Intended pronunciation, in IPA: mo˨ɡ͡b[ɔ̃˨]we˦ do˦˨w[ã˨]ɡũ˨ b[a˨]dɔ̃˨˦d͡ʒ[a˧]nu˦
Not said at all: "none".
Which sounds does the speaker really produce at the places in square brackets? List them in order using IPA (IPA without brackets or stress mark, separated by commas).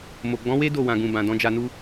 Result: ɔ̃˨˦, ã˨, ã˨, a˧